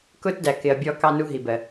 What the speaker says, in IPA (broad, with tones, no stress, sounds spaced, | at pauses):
k ʊː˧ t d æ˩ k ɪ˩ ɐ̯ bʲ ɔ˨˩˦ k ɑ˧ n u˧ ɦ i˩ b ɜ˩